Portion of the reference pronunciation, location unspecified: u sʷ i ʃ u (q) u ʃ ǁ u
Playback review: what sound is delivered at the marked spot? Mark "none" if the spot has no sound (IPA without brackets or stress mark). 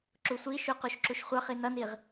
q